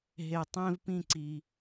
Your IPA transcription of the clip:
ɦe˨ tˤẽ˦v pĩ˦˨ǀi˨

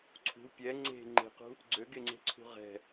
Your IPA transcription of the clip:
ǀʰṳ pʲɛ ŋ͡ǀe̤ ŋ͡ǃe̤qṳ | ɡ͡ǀøɡeŋ͡ǀe̤ǀʰṳ ʁɛ̤

